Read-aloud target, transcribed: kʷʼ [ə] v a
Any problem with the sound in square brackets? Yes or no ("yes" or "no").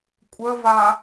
no